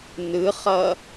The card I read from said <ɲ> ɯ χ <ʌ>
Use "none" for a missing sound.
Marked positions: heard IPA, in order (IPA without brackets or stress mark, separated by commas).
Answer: n, ʌ